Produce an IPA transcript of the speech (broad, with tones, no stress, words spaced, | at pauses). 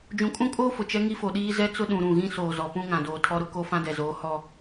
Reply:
d͡ʒũ˨kʼũ˦kʼoː˦ fʊ˨t͡ʃɛ˦ ŋi˦fo˨ɗiː˦ zɛ˦t͡sʊ˦ ɗũ˨ɾũ˦˨ ɣĩ˦soː˨zɔ˨pũ˦ ŋã˨doː˨ tʰɔ˦ɾʊ˦ ko˦ fã˦dɛ˨zoː˨˦ hɔ˦